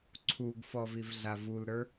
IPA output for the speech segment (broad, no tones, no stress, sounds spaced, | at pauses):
ǀʰ u ɡ f ɔ v i v ɮ a v u l ɾ ə˞